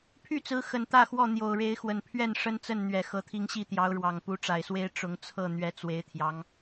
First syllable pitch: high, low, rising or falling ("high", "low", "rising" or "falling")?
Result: falling